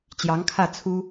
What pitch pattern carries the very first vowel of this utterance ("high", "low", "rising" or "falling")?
rising